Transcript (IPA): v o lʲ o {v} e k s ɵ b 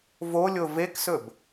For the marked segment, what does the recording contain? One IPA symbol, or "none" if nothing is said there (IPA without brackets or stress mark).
v